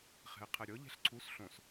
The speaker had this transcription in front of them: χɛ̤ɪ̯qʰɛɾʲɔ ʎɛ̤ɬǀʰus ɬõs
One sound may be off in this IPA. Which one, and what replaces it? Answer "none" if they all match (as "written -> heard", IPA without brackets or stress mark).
none